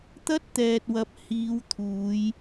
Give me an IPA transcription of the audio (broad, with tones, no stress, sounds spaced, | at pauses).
t̪ ɐ˥ t̚ t̪ ɛː˨ t̚ w ɐ˨˥ p̚ h iː˨˧ w t̪ʰ uː˨˧ j